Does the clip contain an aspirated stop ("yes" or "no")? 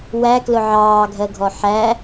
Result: no